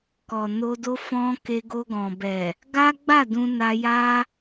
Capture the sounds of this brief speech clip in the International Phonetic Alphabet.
kɔ˨no˧do˦ fɔ̃˦ ke˧ɡo˧ɡɔ̃˨bɛ˨ | ɡa˦ɡ͡ba˦˨ dũ˧ na˧ja˦

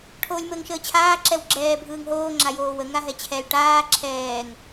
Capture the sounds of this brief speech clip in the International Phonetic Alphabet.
ʈʰoːlʲməːŋʃəːt͡ɕʰaː ǁɛwɡ͡ǁɛː bʱɯːŋɦoː ŋ͡ǁajoːwə ŋaɦɛt͡ɕʰɛl ʈaː ǁʰɛːŋ

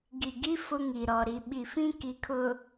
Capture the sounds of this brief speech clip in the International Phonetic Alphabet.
ɡi˨ɡi˦ fʊ˦ŋi˨ ɾɔ˨ɾi˨ ɓi˨fĩ˦ ki˨kʰʊ˨

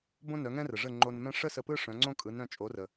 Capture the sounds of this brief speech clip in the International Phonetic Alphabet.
bõ˥nœ˩˥ ŋɛ̃˥rə˩ʐə˥˩ ŋ͡ǃo˧nmɛ̃˥ ʂə˥ sə˧pɯ˥ ʂœ̃˩˥ŋ͡ǀõ˥kʼɯ˩˥nɾœ̃˧ t͡ʃʼo˩˥rə˩

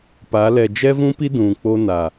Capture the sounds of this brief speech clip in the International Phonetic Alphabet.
pa˨˦ lɛ˨d͡ʒɛ˦vũ˦pi˦ dũ˨ k͡po˦na˨

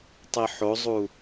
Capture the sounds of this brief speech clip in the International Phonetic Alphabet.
tˤiħozˤu

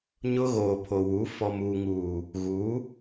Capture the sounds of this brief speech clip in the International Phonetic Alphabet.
ɲʊ˦ɣoː˨pʰo˨wu˨˦ fɔ˨muː˨ ŋuː˨ | ɣu˨˦

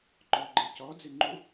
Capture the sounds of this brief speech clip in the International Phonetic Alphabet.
ŋ͡ǃɔɡ͡ǃe cɔd͡zeŋ͡ǃu

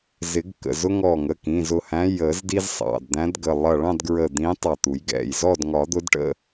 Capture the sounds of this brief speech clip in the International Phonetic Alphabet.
zɪ˨˩˦ɡkə̰˩˧˩ zʊ˦ŋɔ˧˩ ŋə˩˧˩kĩ˩˧˩zʊ˧˩hæ̃˨˦ jə˨˩˦zdi˦z sˤɑ̰˩˧˩dd̪æ̃˨˦dɡə˩˧˩ lˠʌ˧˩ɭɑ̃˥˨dɡɹə˧˩ d̪ĩ˨˦ tˤɑ˧˩t̪u˨˩˦jɡɛ̰˩˧˩jzɔ˥˨d ŋɒ˨˩˦d̪ʊ˨˦dʈə̰˥˨

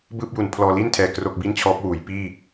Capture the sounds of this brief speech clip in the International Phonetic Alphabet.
bɯː˥˩p̚ju˨˩n pʰlɔː˧liː˥˩ntʰɛː˨˩ kro˥˩k̚bi˥˩nt͡ɕʰɔː˦˥p̚wuː˩˦j piː˥˩

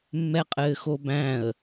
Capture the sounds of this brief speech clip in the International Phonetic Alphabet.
mːɛqʼɘːxobæ̃ə̯

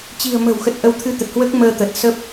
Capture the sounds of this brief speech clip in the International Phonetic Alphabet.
t͡ɕi̤˨˩ə̯mə̤˨˩wxə˨˩t̚ ʔə˧wt̪ʰɨ˧t̪ə˨˩t̚hwəː˦˥k̚ məː˧t̪ə˨˩t̚ sə˦˥p̚

